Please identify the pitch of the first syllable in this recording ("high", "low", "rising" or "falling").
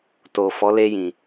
low